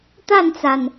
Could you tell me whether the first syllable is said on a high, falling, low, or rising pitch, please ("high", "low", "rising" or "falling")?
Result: falling